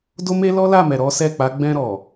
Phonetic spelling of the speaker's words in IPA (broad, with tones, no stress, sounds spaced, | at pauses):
d o˦ m e˦ l ɔ˦ l a˦˨ m ɛ˨ ɾ ɔ˨˦ s ɛ˦˨ k͡p a˨˦ ɡ͡b ɛ̃˧ ɾ ɔ˨